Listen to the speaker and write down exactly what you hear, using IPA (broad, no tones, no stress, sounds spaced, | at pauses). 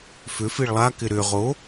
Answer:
f ʏ f i ɭ lˠ a k ɪ ɾ ʏ ʁ o